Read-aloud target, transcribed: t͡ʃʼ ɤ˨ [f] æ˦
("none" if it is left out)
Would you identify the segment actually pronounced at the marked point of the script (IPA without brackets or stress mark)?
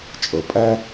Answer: pʼ